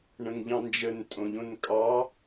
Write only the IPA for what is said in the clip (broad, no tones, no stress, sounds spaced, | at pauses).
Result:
ɳ ə̃ ŋ ʎ ɑ̃ n d͡ʒ ə n tʼ õ ʎ õ n kʼ ɑ